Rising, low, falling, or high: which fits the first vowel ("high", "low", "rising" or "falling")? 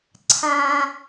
high